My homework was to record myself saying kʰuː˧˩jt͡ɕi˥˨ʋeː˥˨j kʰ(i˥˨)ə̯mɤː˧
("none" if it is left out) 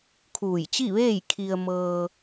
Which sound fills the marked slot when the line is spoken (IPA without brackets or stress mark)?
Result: i˧